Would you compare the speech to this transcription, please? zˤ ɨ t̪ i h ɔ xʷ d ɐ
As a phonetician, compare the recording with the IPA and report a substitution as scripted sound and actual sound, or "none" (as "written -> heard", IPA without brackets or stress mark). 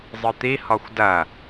none